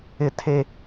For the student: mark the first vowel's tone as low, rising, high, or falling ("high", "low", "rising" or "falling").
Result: low